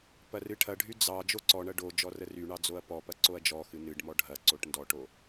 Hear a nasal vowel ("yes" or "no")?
no